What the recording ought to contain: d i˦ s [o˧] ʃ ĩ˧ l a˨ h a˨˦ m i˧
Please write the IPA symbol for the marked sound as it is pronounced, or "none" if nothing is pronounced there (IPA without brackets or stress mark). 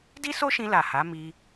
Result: o˦